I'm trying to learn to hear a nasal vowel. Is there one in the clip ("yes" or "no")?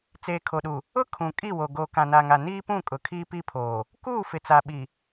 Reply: yes